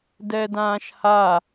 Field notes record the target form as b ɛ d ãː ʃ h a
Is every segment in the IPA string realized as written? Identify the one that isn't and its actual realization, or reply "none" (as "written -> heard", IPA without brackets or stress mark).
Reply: b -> d